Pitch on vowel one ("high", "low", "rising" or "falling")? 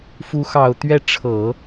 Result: rising